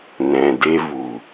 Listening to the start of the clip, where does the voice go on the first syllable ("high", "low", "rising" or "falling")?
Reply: low